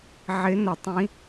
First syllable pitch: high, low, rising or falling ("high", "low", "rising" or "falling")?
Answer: rising